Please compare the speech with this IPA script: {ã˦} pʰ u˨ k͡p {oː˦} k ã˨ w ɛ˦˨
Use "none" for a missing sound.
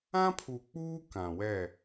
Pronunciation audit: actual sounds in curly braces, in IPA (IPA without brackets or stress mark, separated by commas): ã˦, uː˦